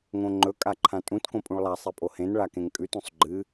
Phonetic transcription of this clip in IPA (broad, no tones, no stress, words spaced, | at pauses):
ŋõŋ͡ǃɵ kʼaǃʰãtʼũt kõpʼũɭlˠa sˤipʼohẽn ɭakẽŋkʼʉt ũsˤɡ͡ǃɨ